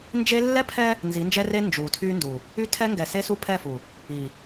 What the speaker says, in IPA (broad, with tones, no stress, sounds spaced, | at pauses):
n d͡ʒ e˦ lː ɛ˦ pʰ ɛ˦ | n z i˨˦ n d͡ʒ ɛ˦ r e˦ n d͡ʒ u˨ tʰ y˦ n d u˨ | y˦ tʰ ɛ˦ ŋ ɡ ɛ˨ s e˦ s u˦ pʰ ɛ˦˨ f u˨ | i˨